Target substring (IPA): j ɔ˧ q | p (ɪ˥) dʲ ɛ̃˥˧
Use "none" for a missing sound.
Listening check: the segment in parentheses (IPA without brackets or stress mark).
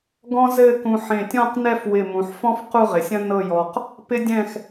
ɪ˥